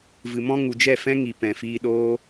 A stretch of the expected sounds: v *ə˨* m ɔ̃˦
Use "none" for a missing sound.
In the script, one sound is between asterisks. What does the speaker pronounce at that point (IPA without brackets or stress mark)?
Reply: ɨ˨